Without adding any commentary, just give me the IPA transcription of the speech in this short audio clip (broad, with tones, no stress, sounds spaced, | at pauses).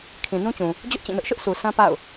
kʰ ĩ˨ n ũ˦ t͡ɕ ũ˨ | d͡ʑ ʊ˦ ʔ t͡ɕ ĩ˦˨ n ʊ˦ ʔ ʃ ʊ˦ ʔ s u˨ sʰ ã˦ p a̰˦˨ ʊ̯